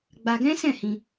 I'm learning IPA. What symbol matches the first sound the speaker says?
ɡ͡b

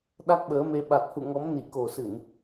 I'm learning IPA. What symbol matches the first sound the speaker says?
ɗ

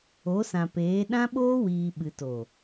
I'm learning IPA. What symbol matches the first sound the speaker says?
o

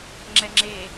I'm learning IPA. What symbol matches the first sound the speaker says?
ŋ͡ǁ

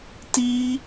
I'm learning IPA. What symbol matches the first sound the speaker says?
t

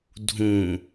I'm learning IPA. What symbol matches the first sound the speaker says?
dʱ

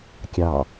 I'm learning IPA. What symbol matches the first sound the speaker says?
kʲ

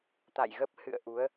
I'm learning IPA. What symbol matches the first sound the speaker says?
t̪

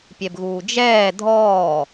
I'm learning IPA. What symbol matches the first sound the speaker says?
pʲ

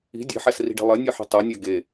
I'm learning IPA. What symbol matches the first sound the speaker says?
i̤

